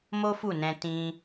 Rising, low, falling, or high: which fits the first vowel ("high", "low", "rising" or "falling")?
high